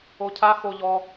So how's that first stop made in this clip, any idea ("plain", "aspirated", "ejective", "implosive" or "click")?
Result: aspirated